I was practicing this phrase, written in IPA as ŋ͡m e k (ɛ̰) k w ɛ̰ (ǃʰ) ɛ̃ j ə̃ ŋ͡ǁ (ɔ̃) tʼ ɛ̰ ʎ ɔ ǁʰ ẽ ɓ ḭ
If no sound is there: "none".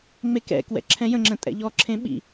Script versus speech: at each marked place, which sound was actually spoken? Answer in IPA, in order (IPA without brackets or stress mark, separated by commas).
ɛ̰, ǁʰ, ə̃